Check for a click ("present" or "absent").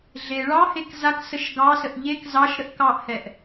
absent